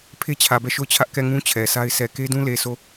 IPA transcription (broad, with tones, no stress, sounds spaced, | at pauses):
pʰ e˦ t͡ɕʰ ä˨ b ɛ˦˨ ʃ o˦˨ ʊ̯ t͡ɕʰ ä˦ ʔ k ɛ˦˨ ŋ ũ˦ t͡ɕʰ ɛ˨ sʰ a˦ ɪ̯ s ɛ˨ k e˦ d ũ˦ l e˨ sʰ o˦˨